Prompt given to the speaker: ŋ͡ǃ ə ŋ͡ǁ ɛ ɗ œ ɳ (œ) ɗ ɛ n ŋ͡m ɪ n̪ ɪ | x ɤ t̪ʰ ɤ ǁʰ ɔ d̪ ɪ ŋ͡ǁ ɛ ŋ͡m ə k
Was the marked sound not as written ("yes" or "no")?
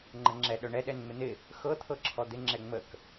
yes